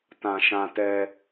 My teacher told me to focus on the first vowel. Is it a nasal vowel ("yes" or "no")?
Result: yes